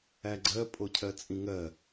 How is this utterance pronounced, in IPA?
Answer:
æ ɡ͡ǀ ɜ pʼ o cʰ ɜ t͡sʼ ĩ ŋ ɜ

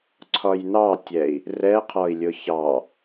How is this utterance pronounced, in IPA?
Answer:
ǀʰ ɒ j n ɑ tʲ ɛ i̯ | r ɛ qʰ ɒ i̯ lʲ ʊ ç ɑ

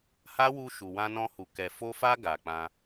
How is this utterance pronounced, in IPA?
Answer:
h a˦ w u˧ ʃ u˨ w ã˧ n ɔ̃˧ h u˨ k ɛ˨ f o˧ f a˧ ɡ a˨ k͡p ã˧

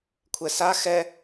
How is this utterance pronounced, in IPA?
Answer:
kʷʰ ɛ s a x ɛ

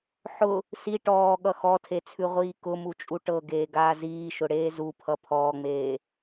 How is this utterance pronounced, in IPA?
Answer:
ħ ʊ | s i ʈ ɔː ɠ ʌ x ɔ tʰ e t͡sʰ ʉ ʁʷ iː k ʊ m u t͡ʃʼ u ʈ ɤ ɡ eː ɡ aː z iː ʃ ʊ ɽ eː z u pʰ ʌ pʰ ɔː ŋ͡m eː

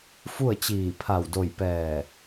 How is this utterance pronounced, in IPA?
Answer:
f u˥˨ ə̯ t͡ɕ iː˧˩ pʰ a˧˩ w d o˧˩ j p ɛː˧˩

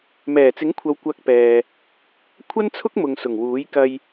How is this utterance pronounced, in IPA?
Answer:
m ɛː˨˩ t͡s ɪ˨˥ ŋ kʷʰ ɐ˨˧ w kʷ ɐ˧ k̚ p ɛː˨ | kʷʰ ɐ˥ n t͡sʰ ʊ˥ k̚ m ʊ˨ ŋ s ʊ˨˩ ŋ w uː˨˥ j k ɐ˧ j

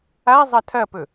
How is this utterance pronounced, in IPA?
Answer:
a zˤ ɐ tʰ ɐ p ɵ

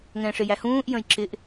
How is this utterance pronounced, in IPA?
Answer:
ŋ ɛ̃ː ʂ ɪ j æ h ũː ʔ j ə̃ j ǁ ɪ ʔ

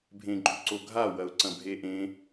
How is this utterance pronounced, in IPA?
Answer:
bʱ ẽ ɡ͡ǃ ʉ ǀ o ɡʱ a w ɐ ʊ̯ ǀ ɐ̃ bʱ e ʔ ẽ

